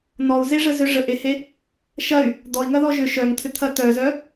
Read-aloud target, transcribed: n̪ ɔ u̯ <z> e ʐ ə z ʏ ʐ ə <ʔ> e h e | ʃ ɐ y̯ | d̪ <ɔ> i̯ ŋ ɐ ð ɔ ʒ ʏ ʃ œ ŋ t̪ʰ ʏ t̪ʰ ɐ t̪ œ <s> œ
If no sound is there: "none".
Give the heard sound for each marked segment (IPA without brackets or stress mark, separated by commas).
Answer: z, ʔ, ɔ, z